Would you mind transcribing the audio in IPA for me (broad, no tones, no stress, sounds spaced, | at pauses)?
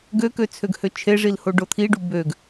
ɡ ø k ø t͡sʰ ø ɡ h ø t͡ʃʰ e ʐ i l h o ɖ o t̪ʰ i ɖ u b ø ɡ